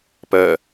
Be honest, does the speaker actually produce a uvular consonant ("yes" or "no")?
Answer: no